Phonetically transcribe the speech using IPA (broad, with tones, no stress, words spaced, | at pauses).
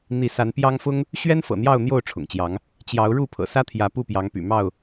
n̪i˥˨ sa˨˦npjɑ˦ŋfʊ˦ŋ | ɕɥɛ˦nfɤ̰˨˩n̪jɑ˥˨ʊ̯ n̪jo˥˨ʊ̯ ʈ͡ʂʰʊ̰˨˩ŋt͡ɕjɑ˨˦ŋ | t͡ɕjɑ˨˦ʊ̯ɻu˥˨ pʰɤ̰˨˩sä˦t̪ʰjä˨˦ pu˥˨pjɑ˨˦ŋ py̰˨˩mɑ˥˨ʊ̯